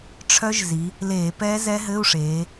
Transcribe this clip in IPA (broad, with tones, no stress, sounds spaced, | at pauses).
ʈ͡ʂʰ œ˦˥ ʒ z i˩˧ | l eː˧˩˧ p ɛː˦˥ z ɛ˦˥ ɦ ɘ˧˥˧ u̯ ʂ eː˩˧